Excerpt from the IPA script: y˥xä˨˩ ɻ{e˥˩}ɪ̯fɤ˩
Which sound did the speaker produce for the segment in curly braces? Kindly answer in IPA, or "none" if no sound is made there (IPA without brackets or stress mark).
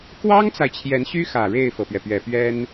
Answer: e˥˩